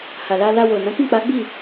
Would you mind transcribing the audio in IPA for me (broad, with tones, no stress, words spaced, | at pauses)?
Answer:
ha˨la˧ la˧wo˨ nã˨˦kĩ˦˨k͡pa˨˦ ɡ͡bi˦˨